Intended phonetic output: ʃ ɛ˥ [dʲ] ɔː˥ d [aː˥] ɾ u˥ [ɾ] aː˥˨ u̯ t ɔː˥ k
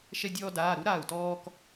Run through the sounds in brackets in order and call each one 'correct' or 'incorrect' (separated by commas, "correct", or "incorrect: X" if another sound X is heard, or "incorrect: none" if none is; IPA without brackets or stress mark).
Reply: correct, incorrect: aː˧˥˧, correct